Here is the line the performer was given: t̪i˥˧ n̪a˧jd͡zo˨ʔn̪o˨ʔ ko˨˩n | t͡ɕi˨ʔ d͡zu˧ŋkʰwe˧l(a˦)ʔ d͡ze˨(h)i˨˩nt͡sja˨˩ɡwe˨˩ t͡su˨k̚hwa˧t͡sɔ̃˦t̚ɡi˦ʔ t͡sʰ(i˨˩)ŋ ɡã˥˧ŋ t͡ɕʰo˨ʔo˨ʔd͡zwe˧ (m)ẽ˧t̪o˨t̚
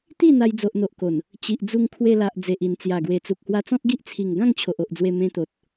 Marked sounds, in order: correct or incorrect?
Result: incorrect: a˨, incorrect: ʔ, correct, correct

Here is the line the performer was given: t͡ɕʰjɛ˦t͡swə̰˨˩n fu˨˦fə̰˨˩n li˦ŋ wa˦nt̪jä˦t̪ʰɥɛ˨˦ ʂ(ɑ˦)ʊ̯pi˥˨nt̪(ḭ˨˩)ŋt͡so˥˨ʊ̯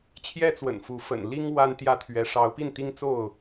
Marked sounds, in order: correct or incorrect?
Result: incorrect: ɑ˨˦, incorrect: i˦

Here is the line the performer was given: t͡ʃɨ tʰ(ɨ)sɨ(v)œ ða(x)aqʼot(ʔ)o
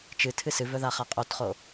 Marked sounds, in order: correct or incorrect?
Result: correct, correct, incorrect: χ, incorrect: χ

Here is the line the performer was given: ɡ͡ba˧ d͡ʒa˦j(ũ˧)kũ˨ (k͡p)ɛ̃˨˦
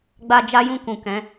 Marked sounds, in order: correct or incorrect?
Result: incorrect: ũ˦˨, incorrect: k

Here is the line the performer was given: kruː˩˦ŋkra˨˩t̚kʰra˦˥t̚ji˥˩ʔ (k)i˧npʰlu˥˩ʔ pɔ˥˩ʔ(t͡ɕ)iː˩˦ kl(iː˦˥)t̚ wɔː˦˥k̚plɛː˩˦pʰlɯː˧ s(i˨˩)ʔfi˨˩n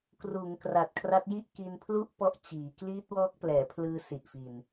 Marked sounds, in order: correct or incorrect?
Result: correct, correct, correct, correct

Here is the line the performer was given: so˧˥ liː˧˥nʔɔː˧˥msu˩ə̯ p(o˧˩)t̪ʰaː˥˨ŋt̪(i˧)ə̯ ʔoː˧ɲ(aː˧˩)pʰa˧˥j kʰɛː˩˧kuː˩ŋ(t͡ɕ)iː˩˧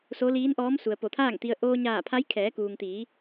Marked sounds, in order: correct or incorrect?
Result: correct, correct, correct, incorrect: t̪

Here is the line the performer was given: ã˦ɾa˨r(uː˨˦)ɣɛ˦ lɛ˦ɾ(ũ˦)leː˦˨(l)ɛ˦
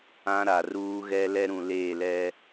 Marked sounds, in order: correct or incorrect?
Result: incorrect: uː˦, incorrect: ũ˨, correct

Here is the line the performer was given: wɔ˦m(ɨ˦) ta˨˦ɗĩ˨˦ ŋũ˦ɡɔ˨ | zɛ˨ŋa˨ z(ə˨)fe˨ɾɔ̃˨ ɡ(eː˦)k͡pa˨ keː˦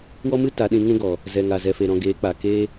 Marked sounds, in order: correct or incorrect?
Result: correct, incorrect: ɛ˨, incorrect: eː˨˦

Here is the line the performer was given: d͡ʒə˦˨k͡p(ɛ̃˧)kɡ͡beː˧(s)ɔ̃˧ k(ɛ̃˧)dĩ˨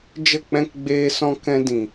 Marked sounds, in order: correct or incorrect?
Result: correct, correct, correct

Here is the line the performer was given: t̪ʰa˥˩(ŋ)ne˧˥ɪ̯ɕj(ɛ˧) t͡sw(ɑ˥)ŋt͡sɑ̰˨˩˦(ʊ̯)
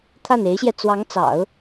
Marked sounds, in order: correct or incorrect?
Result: incorrect: none, correct, incorrect: ɑ˧˥, correct

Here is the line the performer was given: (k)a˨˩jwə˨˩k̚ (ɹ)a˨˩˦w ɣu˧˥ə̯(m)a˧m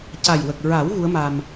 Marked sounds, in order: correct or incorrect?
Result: incorrect: c, correct, correct

